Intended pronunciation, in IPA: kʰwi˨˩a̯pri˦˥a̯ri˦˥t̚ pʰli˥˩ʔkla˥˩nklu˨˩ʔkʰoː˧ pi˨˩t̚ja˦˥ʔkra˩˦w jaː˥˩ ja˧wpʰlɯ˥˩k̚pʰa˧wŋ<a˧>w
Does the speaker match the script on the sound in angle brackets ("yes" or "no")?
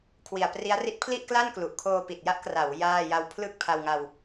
yes